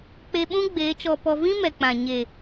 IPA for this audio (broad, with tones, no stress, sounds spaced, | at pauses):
k͡p e˧ ɓ ũ˦ ɡ͡b eː˨˦ t͡ʃ ɔ˧ p ɔ˧ v ĩ˦ m ɛ˨ k͡p ã˨ ɲ e˨